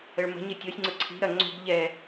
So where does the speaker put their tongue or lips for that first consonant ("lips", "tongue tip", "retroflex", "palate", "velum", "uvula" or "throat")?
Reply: retroflex